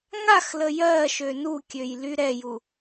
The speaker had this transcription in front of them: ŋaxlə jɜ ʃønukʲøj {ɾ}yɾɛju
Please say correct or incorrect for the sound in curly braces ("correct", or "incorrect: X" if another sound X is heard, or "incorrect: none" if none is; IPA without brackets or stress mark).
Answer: incorrect: l